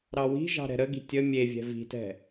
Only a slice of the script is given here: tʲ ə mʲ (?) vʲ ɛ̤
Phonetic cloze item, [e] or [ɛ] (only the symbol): e